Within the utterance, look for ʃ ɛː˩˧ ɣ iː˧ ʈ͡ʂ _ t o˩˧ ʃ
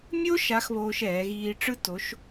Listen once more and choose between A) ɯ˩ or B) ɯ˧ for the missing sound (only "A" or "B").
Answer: B